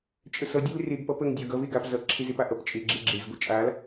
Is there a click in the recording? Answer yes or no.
yes